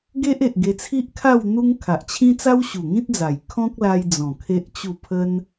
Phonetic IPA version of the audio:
ɡ e˦ ʔ e˨ ʔ ɡ e˧ t͡sʰ i˦ ʔ kʰ a˥˧ w n̪ u˦ ŋ kʰ a˨ ʔ t͡ɕʰ ĩ˦ t͡s a˦ w ɕ u˨˩ ŋ ĩ˦ t̚ d͡z a˨˩ j kʰ ɔ̃˦ k̚ l a˧ j d͡z ɔ̃˨˩ kʰ e˦ ʔ t͡ɕ u˥˧ pʰ ə˦ n

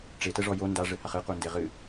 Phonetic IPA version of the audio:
ʈ͡ʂ e t ɛ ʐ ɔ j o n d a ʐ ɘ h a χ ɨ q u n d e ʁ ɨ

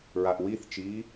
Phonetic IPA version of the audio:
ɹ a ʔ w i θ t͡ʃ iː

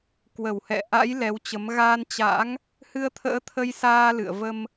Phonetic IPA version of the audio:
k w ə˧˩ w h ɛ̰˧˨ ʔ a̰˧˥ j l ɛ˨˦ w t͡ɕ ə˨˦ m ɣ aː˧ n t͡ɕ a̰˧˥ ŋ | h ɨ˧ ə̯ t̪ʰ ə̰ː˧˥ t̪ʰ ə˧ j s aː˧ l ɨ̰˧˨ ə̯ v ə˧ m

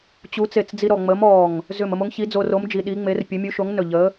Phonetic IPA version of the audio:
t͡ɕ u˨˥ t͡s e˧˩ t͡s d͡z i˧ ɾ ɔ˧˩ ŋ͡m ə˨˥ m ɔ˧˩ ŋ | z ʏ˧˩ m ə˧ m o˨˥ ŋ ç i˨˥ d͡z o˧ r o˨˥ m d͡ʒ i˧ ɗ i˨˥ ŋ͡m e˨˥ r pʲ ə˨˥ mʲ u˨˥ ʃ o˨˥ ŋ n ɵ˧˩ ʎ ə˨˥

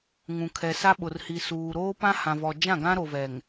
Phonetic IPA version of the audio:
ŋ ũ˨ kʰ ɛ˨ s a˦ ɓ ʊ˨ r h i˨ s uː˨ ɾ oː˦ p ã˦ h ã˨ v ɔ˨ d͡ʒ ã˦˨ ɡ ã˦ ɾ o˨ v ɛ˨ ŋ

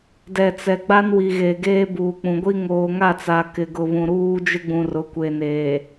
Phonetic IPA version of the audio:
d ɛ˨ t͡s ɛ˨ ɡ͡b a˦ n w i˨ ɣ e˨ ɡ eː˦ b uː˨ k͡p ũ˨ ɡʷ i˦ ŋ oː˨ ŋ a˦˨ t͡s a˨ k ɪ˨ ɡ ʊ˨ β ũ˨ ɾ uː˦ d͡ʒ ɪ˦ ɡ͡b ũ˨ r ʊ˨ kʷ e˨ n eː˨

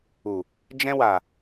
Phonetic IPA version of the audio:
u˨ | d͡ʒ ɛ̃˧ w a˨

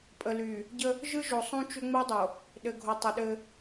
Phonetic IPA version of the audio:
pʼ ə˨ l y˨ | ɟ ə˦ | ʒ ɯ˦ ʒ o˨ sˤ ũ˦ t͡ʃ ʏ˦ ŋ͡m ɯ˦ dˤ o˨ | ɗ ɘ˨ ɡʱ o˨ tˤ ə˨ ɗ ɘ˦

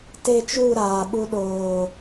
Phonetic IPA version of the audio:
t e˦˨ t͡ʃ u˦˨ ɾ aː˨ ɓ u˧ ɗ oː˨

